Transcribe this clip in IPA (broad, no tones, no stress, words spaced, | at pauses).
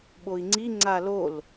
ɓoi̯ŋ͡ǀi ŋ͡ǀalol